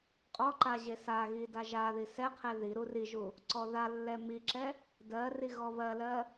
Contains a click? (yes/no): yes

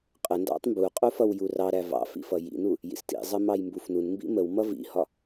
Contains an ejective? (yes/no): yes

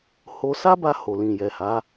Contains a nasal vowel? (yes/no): yes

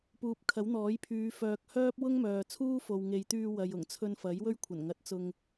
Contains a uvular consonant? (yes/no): no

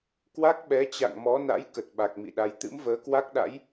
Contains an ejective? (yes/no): no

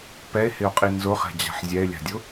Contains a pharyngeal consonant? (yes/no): yes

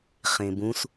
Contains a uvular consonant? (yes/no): yes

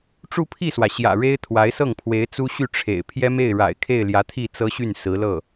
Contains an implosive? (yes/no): no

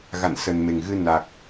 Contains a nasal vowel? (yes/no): no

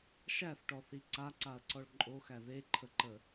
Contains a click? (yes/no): yes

